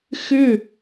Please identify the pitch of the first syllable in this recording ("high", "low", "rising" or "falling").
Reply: falling